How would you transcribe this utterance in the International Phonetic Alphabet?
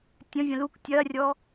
tʲ ə̃ vʲ ə̃ l u k tʲ ɐ rʲ ɔ

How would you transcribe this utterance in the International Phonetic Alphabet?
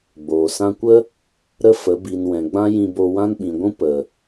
ɡ͡b oː˨ s ã˧ kʷ ə˦ | ɾ ə˦ f ə˨˦ b i˧ n w ɛ̃˨ ɡ͡b ã˦ j ĩ˧ b o˧ w ã˦ n ɓ ĩ˨ ɡʷ ũ˦ p ə˨

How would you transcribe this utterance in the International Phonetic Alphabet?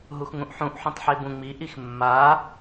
ɦ u x ŋ ũ ʔ ħ ũ ʔ ħ ũ tˤ ħ e b ũ ŋ͡m i ʔ i x mː a

